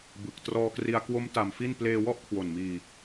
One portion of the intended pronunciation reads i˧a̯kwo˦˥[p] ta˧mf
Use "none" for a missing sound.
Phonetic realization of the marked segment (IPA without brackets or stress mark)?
m